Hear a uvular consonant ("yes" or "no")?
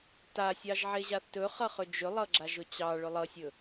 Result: yes